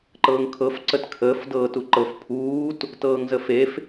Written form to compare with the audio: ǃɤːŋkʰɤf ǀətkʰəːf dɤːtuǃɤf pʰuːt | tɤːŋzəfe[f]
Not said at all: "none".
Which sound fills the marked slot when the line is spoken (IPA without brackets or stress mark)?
f